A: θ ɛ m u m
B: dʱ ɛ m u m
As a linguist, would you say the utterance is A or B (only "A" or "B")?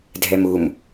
B